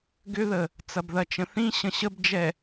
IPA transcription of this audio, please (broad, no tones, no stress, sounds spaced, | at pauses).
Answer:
ɡ ʏ ð ə | t͡s ɐ b ð ɐ t͡ʃ ə̃ θ ĩ ɕ ə̃ ɕ ə b d͡ʒ ɛ